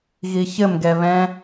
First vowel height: high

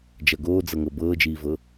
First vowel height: low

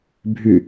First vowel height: high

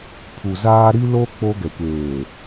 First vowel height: high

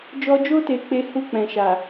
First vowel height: mid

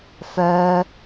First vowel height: mid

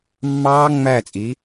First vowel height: low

